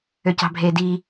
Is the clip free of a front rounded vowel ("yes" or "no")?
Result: no